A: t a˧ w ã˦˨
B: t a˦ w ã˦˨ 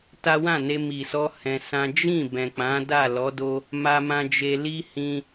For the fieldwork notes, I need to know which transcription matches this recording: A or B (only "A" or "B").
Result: B